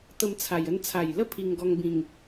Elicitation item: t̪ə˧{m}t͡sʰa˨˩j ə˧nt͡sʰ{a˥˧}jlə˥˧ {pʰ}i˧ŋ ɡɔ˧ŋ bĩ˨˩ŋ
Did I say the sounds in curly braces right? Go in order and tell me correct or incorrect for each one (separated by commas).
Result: correct, incorrect, correct